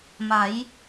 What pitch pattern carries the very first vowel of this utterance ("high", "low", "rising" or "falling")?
rising